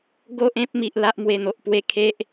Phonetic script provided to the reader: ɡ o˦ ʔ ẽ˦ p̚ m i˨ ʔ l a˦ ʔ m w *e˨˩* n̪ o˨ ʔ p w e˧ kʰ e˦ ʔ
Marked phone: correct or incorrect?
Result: correct